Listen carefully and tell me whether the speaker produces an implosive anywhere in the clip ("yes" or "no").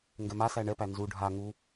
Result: no